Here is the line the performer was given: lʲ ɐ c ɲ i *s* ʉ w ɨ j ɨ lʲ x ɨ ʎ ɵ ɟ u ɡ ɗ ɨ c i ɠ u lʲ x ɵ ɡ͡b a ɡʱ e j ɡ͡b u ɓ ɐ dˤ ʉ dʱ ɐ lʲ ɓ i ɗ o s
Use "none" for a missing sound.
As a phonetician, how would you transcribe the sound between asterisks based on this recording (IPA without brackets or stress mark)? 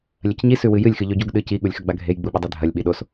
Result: s